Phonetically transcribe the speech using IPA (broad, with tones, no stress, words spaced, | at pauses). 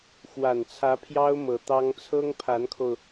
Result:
xwa˨˩nt͡sʰä˧˥pʰjɑ˥ʊ̯ mɤ˧˥t̪ɑ˥ŋ t͡sʰɤ˥ŋpʰa˧˥nkʰo˧ʊ̯